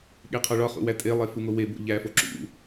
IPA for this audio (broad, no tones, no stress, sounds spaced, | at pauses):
ɠ e qʰ ɒ ɭ ɒ χ ṵ w æ tʼ e lˠ e f u ŋ o w e b o̰ ʎ æ f o ǁ ṵ